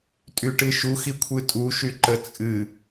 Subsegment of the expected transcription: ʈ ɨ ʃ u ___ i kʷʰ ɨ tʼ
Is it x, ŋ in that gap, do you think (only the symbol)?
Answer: x